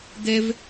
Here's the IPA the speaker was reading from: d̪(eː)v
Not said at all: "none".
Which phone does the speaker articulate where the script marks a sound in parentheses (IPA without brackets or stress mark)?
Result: e